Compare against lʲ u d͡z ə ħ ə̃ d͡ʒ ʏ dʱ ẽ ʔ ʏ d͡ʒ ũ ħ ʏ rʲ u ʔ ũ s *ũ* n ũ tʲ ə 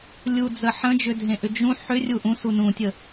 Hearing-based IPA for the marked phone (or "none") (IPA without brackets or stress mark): u